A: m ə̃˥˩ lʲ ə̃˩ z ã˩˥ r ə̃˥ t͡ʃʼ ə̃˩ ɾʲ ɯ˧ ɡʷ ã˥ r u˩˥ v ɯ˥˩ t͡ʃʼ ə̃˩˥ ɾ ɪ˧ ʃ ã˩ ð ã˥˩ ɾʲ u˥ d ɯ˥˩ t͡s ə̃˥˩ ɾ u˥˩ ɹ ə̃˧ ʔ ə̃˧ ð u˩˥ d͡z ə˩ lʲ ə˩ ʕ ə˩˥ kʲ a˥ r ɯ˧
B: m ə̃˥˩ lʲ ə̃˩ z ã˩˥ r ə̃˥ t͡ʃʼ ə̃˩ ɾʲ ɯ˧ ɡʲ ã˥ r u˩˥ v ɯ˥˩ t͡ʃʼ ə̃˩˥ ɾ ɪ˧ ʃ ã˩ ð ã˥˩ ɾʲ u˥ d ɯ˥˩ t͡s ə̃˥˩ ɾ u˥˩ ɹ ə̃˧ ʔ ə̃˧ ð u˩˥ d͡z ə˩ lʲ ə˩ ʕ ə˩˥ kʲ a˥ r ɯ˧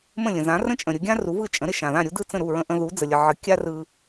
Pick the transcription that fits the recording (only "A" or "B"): B